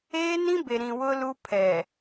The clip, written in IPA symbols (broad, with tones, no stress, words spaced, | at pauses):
eː˦nĩ˦be˨ ɾĩ˨wʊ˦lu˦ pʰɛ˨